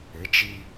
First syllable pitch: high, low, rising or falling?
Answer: rising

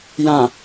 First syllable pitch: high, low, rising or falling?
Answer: low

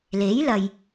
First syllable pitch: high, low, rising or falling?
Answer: rising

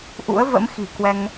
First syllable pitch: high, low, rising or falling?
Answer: rising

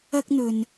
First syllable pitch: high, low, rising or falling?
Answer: high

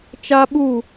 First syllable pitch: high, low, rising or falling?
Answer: high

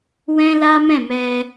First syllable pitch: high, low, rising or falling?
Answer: high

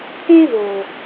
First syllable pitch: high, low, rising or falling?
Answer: high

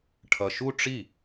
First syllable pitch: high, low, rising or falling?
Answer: low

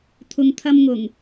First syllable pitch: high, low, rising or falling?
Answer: low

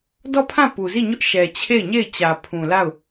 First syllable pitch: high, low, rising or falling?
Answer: falling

